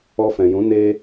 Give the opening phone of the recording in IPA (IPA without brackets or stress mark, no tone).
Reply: ɔ